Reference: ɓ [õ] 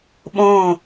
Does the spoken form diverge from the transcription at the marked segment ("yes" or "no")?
no